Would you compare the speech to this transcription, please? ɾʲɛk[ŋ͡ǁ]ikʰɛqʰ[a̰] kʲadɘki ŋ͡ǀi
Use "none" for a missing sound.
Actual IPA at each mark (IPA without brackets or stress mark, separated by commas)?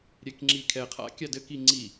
ŋ͡ǁ, a̰